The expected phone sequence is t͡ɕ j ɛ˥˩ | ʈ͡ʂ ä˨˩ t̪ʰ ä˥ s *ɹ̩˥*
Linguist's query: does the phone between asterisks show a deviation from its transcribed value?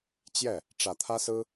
no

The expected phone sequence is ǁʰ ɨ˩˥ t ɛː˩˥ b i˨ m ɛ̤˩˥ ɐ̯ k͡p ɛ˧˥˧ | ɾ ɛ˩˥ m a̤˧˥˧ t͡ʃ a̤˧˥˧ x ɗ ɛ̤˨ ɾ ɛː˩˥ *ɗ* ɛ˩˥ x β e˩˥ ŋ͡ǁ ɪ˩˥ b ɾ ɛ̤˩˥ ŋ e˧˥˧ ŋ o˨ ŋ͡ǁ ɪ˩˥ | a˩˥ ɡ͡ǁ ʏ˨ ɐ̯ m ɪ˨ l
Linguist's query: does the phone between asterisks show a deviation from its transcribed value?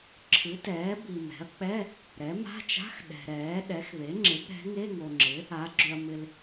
no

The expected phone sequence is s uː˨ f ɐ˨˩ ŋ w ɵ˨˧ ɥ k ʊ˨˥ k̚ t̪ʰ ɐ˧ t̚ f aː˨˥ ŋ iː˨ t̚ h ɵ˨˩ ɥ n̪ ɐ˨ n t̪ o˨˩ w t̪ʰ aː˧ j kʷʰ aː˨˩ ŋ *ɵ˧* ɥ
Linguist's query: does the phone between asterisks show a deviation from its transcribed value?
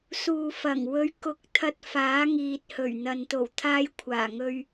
no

